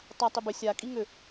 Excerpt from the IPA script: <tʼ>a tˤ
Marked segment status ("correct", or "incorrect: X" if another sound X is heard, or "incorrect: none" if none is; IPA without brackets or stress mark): incorrect: tˤ